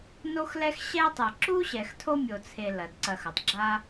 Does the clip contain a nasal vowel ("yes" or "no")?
no